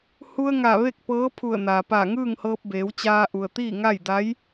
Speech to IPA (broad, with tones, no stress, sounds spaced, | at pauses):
h u˧ ə̯ ŋ a˧˩ ʋ e˥˨ k̚ p ɤː˧˥ pʰ u˧˩ ə̯ n aː˩ p aː˧˩ ŋ ɯː˥˨ ŋ h ɤː˧ p̚ b eː˩˧ w t͡ɕ aː˧ ʔ u˩ ə̯ t̪ iː˥˨ ŋ a˥˨ j d a˧˥ j